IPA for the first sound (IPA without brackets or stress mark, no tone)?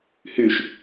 h